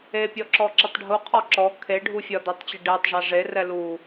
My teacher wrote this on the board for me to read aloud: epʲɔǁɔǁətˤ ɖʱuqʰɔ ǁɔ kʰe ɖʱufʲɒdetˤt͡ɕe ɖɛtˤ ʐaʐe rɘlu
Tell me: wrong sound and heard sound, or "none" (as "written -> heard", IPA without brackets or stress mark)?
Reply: ɘ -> ɛ